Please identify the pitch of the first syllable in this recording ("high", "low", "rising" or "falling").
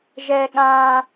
low